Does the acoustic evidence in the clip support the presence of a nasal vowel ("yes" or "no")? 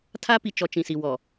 yes